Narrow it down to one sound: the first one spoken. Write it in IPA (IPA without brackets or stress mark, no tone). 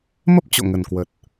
m